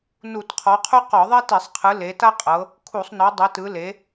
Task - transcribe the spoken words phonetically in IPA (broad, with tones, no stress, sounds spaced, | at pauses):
n u˧˩˧ t qʰ ɔ˨˦ qʰ u˥ q ɔ˧˩˧ ðˤ e˥ t i˧˩˧ sˤ qʰ ɯ˨˦ l e˨˦ t a˥ qʼ ɤ˨˦ | kʰ u˧˩˧ sˤ n ɔ˨˦ dˤ ɛ˨˦ t ɯ˨˦ l e˨˦